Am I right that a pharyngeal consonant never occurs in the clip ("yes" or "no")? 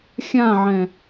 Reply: no